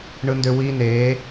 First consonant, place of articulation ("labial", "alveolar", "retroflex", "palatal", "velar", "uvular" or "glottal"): retroflex